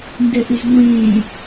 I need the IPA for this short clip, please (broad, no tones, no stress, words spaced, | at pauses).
ndɛʔyzŋʷẽː